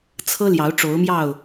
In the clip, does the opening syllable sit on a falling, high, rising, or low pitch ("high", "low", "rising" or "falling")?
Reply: high